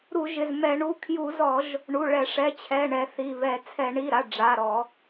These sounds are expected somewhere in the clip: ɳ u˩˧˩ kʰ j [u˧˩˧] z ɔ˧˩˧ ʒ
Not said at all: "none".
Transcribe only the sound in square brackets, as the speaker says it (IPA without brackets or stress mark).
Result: u˧˩˧